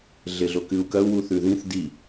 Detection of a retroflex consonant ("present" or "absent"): absent